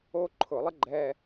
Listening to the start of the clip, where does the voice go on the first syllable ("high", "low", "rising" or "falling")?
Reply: high